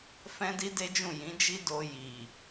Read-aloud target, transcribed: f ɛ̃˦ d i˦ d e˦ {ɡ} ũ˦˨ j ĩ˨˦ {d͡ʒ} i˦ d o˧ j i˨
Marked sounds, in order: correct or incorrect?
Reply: incorrect: d͡ʒ, correct

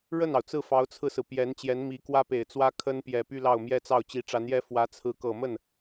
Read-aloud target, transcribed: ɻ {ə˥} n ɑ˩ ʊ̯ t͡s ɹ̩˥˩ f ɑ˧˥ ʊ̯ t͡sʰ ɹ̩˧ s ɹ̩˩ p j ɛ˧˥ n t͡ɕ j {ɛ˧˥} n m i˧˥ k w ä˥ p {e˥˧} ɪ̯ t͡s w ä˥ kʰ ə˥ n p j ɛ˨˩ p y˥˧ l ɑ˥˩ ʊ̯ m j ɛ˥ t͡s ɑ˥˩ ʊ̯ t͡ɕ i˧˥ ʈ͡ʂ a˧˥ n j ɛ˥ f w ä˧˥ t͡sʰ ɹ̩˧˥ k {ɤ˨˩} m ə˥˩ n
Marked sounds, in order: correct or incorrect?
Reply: incorrect: ə˥˩, correct, incorrect: e˨˩, correct

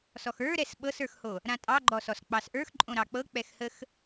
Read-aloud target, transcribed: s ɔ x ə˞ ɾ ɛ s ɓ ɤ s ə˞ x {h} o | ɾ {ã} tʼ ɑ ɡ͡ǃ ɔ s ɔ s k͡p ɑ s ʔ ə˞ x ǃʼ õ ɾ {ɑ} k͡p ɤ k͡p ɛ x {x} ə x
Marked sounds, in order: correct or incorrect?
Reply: correct, correct, correct, incorrect: h

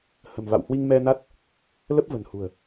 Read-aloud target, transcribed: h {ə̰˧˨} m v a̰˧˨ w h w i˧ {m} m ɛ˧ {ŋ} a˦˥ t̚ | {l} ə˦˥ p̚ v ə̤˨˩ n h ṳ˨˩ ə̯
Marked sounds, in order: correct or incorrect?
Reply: incorrect: ə̤˨˩, incorrect: ŋ, incorrect: n, correct

